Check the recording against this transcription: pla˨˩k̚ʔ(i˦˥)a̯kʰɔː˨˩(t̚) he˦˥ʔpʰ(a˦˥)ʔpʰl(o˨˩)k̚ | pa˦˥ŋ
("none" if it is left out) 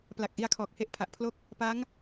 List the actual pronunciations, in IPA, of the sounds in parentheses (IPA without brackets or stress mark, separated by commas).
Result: i˧, k̚, a˨˩, o˥˩